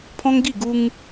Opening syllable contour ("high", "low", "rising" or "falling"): high